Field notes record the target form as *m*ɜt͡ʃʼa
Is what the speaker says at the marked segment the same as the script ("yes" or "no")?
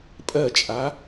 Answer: no